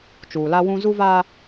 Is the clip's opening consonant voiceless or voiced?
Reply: voiceless